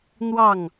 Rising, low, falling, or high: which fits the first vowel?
falling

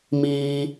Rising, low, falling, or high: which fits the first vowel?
high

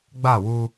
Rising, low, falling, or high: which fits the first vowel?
falling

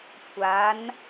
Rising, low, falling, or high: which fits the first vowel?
rising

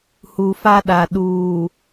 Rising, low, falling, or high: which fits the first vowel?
low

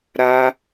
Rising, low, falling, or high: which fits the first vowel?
high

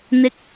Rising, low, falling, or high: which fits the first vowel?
rising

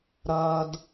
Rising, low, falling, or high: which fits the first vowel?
low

